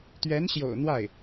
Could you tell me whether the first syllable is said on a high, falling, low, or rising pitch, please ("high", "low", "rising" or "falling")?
rising